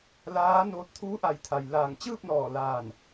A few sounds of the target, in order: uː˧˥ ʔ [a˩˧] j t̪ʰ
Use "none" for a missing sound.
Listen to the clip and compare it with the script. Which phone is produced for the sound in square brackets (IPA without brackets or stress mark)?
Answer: a˩˧